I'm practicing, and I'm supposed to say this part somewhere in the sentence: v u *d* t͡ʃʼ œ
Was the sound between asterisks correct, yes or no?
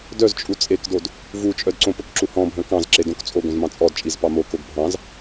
no